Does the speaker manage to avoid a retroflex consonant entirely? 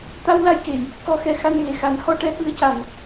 no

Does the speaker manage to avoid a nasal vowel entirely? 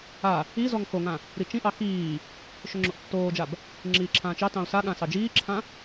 no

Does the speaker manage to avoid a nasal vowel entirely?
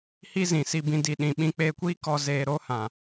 no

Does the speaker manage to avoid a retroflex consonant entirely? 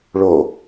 no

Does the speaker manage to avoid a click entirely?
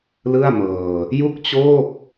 yes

